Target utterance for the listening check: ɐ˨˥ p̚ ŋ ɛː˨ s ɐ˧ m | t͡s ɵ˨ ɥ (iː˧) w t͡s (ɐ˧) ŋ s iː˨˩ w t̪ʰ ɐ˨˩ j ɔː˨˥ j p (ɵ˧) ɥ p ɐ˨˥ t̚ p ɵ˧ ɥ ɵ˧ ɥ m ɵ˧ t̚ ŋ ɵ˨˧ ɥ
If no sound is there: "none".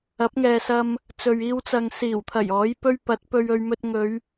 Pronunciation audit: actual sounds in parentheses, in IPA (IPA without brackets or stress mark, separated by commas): iː˧, ɐ˨, ɵ˥